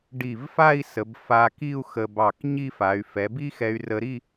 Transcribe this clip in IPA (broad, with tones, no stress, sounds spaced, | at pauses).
ɖ i˧˩ v f a˥˧ i̯ s ə˩˧ b f a˧ k i˥˧ u̯ x ə˧ b ɑ˧˩ k ɲ i˥˧ f a˩˧ y̯ f ɛ˩˧ b i˥ x ɛ˧ y̯ r ə˧ ɾ i˥˧